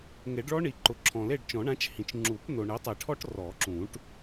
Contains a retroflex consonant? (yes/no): yes